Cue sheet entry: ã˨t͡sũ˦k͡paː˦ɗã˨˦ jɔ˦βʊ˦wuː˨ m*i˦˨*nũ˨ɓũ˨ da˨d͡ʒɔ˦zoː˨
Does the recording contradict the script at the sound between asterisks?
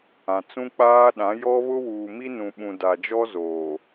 yes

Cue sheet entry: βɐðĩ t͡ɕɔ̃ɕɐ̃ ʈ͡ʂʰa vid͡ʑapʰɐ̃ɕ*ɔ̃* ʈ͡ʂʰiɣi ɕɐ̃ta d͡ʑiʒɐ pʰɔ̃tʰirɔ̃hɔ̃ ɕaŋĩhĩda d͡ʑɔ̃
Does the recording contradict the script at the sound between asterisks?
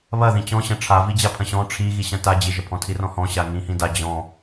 no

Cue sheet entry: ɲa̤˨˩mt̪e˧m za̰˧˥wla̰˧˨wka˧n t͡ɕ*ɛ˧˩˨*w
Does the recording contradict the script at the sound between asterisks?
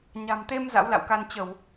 yes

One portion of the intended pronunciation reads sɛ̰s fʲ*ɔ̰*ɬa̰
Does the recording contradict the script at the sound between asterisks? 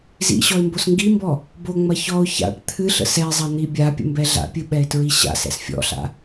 no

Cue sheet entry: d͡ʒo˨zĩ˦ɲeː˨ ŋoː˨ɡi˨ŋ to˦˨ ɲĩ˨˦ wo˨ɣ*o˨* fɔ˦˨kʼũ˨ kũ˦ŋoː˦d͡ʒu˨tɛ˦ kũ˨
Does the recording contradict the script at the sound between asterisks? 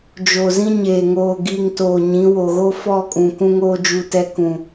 yes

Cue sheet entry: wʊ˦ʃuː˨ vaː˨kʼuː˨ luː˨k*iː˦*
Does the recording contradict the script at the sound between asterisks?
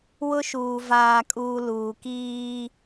no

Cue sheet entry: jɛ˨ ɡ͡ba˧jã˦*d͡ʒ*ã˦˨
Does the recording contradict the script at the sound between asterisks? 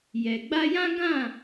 yes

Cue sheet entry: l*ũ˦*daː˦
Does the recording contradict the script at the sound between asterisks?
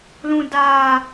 no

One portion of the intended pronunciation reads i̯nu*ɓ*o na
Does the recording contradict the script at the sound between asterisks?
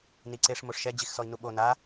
no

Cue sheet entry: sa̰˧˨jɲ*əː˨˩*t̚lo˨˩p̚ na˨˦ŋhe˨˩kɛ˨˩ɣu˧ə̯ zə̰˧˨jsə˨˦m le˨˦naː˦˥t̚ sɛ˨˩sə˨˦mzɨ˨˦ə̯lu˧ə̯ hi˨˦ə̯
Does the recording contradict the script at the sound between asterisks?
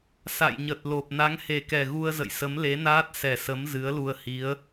yes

